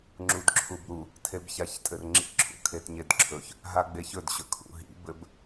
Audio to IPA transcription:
ŋ͡ǁ u d ǁʰ u b ɾ u | tʰ e b ç a ç tʼ ɘ r ŋ͡ǁ ḭ ǁʰ ṵ kʰ e t ɲ e d ǁʰ ɵ ç | ɦ a ɡ͡b e ç ɵ d ɕ ɵ kʰ ṵ ɦ ḭ b ɘ b

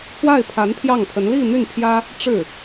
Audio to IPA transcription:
pʰ w a˥˩ ɪ̯ pʰ a˧˥ n pʰ j ɑ˥˩ ŋ t̪ʰ ə˧˥ n l i˥˧ n̪ y˥˩ n pʰ j ä˥ | ʈ͡ʂ ɻ̩˥˩

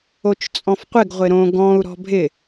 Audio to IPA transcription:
o t͡ʃ t͡sʼ ɔ̃ f qʷ ɪ ɡ ʁʷ ɪ ɾ õ ɡ ɔ̃ u̯ ɾ ɔ̤ bʱ ɪ

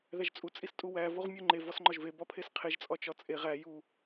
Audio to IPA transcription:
ð æ ʒ t͡sʼ u t͡sʼ i s tʼ u w æ v o ʁ mʲ o ŋ͡ǃ e v ɒ s ŋ͡ǃ ɒ ʒ v e b ɒ pʰ e s qʰ e ʒ t͡sʼ ɒ t͡ʃ ɒ t͡sʼ e ʁ æ j u

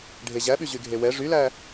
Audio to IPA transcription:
ɖʱ e ʑ æ ɓ y ʑ y ɡʱ e w ɛ ʐ y l æ

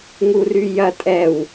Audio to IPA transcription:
ŋ u r y j ɐ tʼ ɛ w

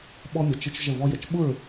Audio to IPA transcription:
ɓ ɔ˥ mʲ ɔ˧ t͡ʃ ɘ˥ t͡ʃ ʒ ə˥˧ v ɔ˥ j ə˩˧ t͡ʃ ɓ ʊ˥˧ ɹ

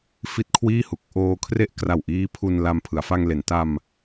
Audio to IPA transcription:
f i˥˩ t̚ kʰ w iː˥˩ h u˨˩ k̚ ʔ oː˧ kʰ r e˥˩ ʔ k r a˨˩ w ʔ iː˦˥ pʰ u˧ n l a˧ m pʰ ɯ˩˦ a̯ f a˧ ŋ l e˩˦ n t a˧ m

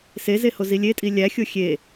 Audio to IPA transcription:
s e z e h o z i lʲ e tʼ i lʲ æ xʲ o xʲ e

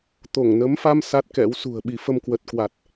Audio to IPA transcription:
t̪ o˧˩ ŋ n ə˨˦ m f a˧ m s a˦˥ t̚ k ɛ̰˧˥ w s ṳ˨˩ ə̯ ɓ i˨˦ f ə˧ m k w ə˨˩ t̚ k w a˨˩ t̚

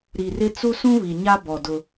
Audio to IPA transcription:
ɾ i˨ r ɪ˦ t͡s u˦ s ũ˦ β i˨ ɲ a˦ b ɔ˨ d ʊ˦

